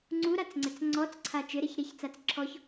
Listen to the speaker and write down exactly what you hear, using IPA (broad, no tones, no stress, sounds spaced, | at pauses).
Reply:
ŋ͡ǀ u ɾ a t͡s ŋ͡ǀ ɛ t͡s ŋ͡ǀ ɔ t͡s ǀʰ a t͡ʃ ɪ ɾ e ç ɾ e ç t͡s a t͡s ǁʰ ɔ ç